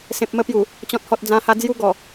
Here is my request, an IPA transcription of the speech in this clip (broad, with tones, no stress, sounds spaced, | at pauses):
s ẽ˨ p̚ m ə˧ p j u˨˩ | t͡ɕ ɔ̃˨ t̚ h ɔ˨ t̚ d͡z ã˧ h a˧ d͡z j u˦ ɡ ɔ˨˩